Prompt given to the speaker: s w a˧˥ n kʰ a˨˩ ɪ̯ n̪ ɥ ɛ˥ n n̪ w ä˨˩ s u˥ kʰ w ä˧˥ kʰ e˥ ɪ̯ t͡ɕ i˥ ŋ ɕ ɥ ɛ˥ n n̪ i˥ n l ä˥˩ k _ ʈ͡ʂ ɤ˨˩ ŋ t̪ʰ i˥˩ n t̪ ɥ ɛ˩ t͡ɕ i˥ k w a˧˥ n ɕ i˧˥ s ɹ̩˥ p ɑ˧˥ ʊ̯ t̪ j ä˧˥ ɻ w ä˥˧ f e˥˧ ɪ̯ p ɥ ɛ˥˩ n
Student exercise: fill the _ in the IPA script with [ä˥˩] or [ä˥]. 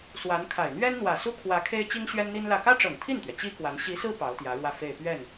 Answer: ä˥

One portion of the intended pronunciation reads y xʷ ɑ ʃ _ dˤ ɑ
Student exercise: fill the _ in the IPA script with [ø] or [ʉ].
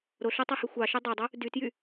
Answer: ø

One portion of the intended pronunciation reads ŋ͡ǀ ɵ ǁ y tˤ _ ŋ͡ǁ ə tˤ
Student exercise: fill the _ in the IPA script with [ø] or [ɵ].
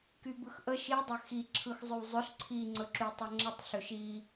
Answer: ɵ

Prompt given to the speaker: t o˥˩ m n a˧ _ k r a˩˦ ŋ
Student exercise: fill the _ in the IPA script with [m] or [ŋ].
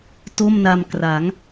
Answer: m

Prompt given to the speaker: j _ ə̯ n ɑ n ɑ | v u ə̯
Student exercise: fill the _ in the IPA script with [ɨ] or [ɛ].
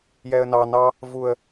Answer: ɛ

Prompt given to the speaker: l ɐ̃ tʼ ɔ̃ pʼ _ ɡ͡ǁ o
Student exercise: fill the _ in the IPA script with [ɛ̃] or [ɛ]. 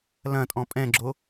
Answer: ɛ̃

